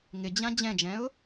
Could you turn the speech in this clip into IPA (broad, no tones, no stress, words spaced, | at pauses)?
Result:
ŋɪd͡ʑã d͡ʑɛ̃d͡ʒɛ̃ʊ̯